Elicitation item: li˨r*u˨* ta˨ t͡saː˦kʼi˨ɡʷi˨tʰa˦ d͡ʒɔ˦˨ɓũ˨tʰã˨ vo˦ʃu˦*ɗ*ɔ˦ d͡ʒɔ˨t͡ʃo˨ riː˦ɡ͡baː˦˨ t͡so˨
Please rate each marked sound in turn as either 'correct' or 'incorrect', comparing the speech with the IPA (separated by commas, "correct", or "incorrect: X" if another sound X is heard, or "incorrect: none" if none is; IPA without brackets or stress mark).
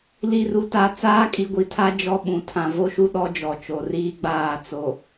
correct, correct